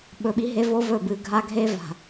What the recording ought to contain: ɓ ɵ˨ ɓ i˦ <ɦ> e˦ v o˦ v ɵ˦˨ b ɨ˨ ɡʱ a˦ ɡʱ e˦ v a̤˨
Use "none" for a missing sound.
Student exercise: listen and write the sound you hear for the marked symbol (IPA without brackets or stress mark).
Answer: ɦ